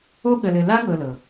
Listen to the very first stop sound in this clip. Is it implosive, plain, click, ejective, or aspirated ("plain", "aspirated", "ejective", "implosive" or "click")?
implosive